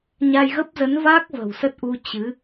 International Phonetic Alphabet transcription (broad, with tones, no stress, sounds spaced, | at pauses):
ɲ a˧ j ɣ ə˦˥ p̚ z ə˨˦ n v a˦˥ k̚ v ə̤˨˩ w s ə˦˥ t̚ ʔ u˧ t͡ɕ ɨ˨˦